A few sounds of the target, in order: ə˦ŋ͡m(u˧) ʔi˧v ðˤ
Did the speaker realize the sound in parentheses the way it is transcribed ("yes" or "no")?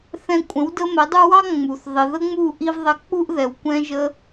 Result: no